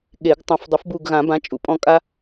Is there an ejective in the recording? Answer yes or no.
yes